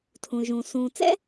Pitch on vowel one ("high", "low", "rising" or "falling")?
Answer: low